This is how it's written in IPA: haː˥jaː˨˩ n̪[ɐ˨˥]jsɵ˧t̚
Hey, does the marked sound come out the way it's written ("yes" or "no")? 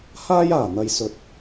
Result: no